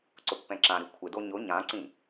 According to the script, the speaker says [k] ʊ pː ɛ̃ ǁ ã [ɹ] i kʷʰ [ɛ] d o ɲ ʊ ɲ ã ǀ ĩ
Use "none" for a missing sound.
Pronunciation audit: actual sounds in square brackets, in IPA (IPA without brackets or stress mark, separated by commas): ǀ, ɾ, ɪ